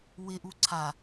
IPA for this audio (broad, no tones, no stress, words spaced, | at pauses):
wɪʔu ǀʰa